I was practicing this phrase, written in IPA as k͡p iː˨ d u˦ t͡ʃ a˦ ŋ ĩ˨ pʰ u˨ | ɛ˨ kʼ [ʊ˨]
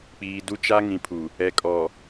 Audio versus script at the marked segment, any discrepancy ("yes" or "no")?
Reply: yes